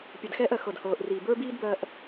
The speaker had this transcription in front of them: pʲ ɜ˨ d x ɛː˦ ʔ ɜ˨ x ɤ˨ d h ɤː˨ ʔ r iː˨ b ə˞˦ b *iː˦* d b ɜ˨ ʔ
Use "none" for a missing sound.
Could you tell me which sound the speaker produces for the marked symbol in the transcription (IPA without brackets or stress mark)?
iː˦